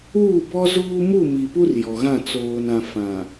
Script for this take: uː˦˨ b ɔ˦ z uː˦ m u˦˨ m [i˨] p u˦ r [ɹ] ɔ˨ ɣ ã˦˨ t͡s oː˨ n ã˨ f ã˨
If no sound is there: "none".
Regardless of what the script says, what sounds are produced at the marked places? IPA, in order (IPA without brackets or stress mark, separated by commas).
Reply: i˨, j